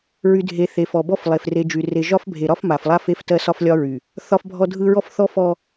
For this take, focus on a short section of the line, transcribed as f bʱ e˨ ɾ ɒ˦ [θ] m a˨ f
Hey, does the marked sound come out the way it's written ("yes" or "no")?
no